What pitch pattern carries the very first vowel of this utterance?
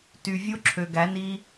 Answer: low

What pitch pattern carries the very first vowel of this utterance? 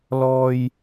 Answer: high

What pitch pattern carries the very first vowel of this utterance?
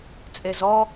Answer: low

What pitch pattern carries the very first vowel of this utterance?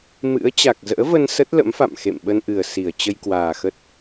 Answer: rising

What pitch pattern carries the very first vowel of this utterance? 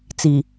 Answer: low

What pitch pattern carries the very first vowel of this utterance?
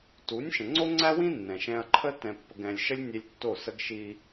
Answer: rising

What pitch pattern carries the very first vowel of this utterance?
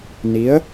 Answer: rising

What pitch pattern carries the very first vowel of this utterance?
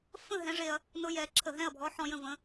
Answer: falling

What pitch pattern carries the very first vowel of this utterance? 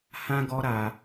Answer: high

